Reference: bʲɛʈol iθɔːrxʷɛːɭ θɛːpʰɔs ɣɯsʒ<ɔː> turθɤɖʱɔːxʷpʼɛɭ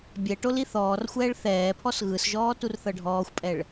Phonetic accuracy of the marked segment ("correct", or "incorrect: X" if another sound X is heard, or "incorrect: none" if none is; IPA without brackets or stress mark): correct